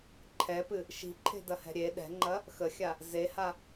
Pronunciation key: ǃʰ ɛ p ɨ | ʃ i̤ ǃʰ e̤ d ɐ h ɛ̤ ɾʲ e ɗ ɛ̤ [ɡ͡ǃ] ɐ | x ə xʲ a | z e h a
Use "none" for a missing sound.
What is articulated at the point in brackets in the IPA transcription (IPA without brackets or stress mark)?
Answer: ŋ͡ǃ